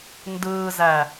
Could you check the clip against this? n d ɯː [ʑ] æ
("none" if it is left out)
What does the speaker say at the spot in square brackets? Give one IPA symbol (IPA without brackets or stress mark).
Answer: z